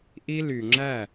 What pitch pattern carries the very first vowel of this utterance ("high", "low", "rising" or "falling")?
high